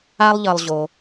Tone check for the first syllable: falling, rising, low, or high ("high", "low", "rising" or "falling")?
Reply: high